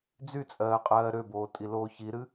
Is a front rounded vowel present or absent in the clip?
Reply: present